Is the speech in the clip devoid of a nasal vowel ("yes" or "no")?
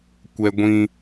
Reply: no